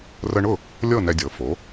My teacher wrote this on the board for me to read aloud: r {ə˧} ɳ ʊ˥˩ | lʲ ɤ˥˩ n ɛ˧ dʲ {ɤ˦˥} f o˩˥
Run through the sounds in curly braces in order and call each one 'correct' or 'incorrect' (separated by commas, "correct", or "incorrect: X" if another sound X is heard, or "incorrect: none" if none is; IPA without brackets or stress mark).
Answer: correct, incorrect: ɤ˩˥